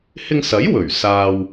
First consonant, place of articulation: glottal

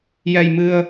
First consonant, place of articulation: palatal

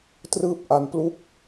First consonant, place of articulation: alveolar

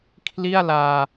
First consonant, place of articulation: velar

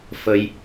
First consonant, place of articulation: labial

